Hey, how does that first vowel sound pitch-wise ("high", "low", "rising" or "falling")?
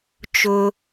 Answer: low